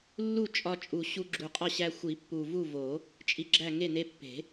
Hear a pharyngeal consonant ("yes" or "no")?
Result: no